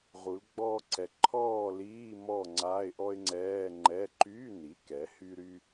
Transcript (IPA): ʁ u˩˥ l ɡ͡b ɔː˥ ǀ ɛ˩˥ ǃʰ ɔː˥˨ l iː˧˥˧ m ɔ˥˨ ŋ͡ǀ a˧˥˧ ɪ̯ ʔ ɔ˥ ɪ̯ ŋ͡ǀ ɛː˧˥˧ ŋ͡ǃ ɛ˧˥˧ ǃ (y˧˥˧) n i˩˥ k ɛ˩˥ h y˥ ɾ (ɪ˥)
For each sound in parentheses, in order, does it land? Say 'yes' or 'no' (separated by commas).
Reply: yes, no